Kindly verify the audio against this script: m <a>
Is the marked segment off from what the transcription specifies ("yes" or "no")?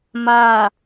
no